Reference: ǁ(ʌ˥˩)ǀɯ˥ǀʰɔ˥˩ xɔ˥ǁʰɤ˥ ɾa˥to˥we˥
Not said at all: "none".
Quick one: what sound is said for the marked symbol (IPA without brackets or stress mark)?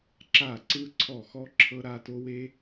a˥˩